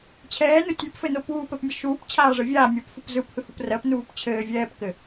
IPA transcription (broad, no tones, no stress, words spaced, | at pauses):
t͡ɕʰɛːnɯ tʲʉpfɘno puːpɜpmʲə ʃuːp t͡ɕʰaːʐɘvʲaː mʲopfup zɯphɯhup rɜpnuːp t͡ɕʰɘː vʲɛːpkɘ